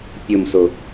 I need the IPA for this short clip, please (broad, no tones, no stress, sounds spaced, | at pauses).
pʲ o m s o